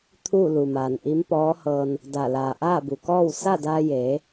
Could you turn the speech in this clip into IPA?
t̪ʰ uː˥˨ l u˩ m aː˩ n ʔ i˧˥ m p ɔː˧˥ h ɤː˧ n | d a˧˩ l aː˩ ʔ aː˥˨ b u˩ k ɔː˥˨ w s a˥˨ d aː˧ j eː˩˧

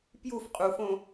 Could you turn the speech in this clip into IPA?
p j u f qʼ u f õ

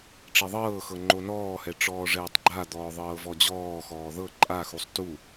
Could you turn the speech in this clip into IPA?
ʈ͡ʂ e ðˤ ɤː x ɤ ŋ͡ǃ o n ɔː h ɛ ʈ͡ʂ ɔː ʐ ɛː tˤ ɡ͡ǃ a d̪ ɔː ðˤ ɤː v ɔ d͡ʑ ɔː x ɔː ð ɤ ǃʼ a x u sˤ t u

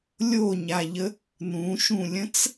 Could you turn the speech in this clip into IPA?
lʲ o ɲ a ʎ ə | n ũ ʃ ũ lʲ ə̃ t͡s

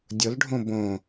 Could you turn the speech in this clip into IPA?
dʲ ʊ l ɖʱ õ b õ

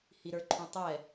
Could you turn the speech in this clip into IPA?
h i ɾ ə˞ ǃʰ ũ tˤ ɛ

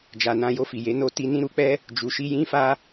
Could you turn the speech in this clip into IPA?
d͡ʒ a˨ n ã˧ j o˧ f i˨ j e˨˦ n o˧ t i˧ n ĩ˦ ɾ u˧ k͡p ɛ˦ | d͡ʒ u˨ ʃ i˧ j ĩ˦ f a˦

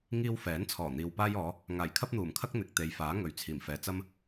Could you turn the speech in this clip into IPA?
ŋ iː˧ w f ɛː˨˥ n t͡sʰ ɔː˨˩ n̪ iː˨ w p aː˥ j ɔː˨˥ | ŋ aː˨˩ j kʰ ɐ˥ p̚ n̪ uː˨˩ m kʰ ɐ˥ k̚ n̪ ɪ˨ k̚ t̪ e˨ j f aː˨˥ ŋ ɵ˨ ɥ t͡sʰ iː˨˩ m f ɛː˨˧ t͡s ɐ˥ m

